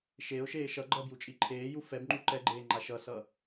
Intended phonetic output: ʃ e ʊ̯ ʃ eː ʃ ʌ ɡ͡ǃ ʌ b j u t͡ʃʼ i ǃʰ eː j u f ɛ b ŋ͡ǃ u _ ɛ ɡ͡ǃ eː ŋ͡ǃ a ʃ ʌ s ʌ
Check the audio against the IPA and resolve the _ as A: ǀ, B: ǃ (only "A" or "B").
B